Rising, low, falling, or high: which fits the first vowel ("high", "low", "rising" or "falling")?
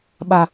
low